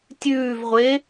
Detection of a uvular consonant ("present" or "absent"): present